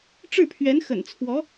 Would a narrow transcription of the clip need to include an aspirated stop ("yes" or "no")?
yes